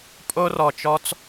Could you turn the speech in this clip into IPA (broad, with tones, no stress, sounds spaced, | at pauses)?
pʼ o˧ r ɔ˨ t͡ʃ ɔ˧ t͡s